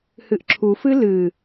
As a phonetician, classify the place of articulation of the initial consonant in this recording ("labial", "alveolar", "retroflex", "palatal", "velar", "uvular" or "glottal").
glottal